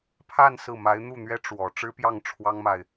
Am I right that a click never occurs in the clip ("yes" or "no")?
yes